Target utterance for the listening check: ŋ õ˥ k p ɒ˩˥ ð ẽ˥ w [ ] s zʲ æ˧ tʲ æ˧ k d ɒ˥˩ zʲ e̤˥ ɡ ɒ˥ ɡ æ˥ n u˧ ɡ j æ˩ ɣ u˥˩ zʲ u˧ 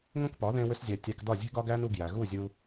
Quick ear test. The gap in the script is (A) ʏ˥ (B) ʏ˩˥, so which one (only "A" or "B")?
A